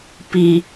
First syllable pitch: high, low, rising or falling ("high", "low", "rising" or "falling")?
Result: low